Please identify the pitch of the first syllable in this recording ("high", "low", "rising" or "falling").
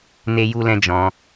high